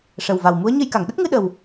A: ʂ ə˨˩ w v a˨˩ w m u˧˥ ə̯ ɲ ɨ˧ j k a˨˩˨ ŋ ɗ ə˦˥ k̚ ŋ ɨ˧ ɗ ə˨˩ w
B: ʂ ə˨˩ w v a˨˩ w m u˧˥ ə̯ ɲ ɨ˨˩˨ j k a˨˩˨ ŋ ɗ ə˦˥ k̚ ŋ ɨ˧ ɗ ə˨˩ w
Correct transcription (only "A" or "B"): A